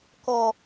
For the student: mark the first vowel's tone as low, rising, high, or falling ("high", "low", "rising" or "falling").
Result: low